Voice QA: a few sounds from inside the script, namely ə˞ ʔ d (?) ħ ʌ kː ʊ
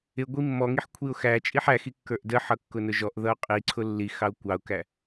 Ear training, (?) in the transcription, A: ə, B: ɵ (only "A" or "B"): A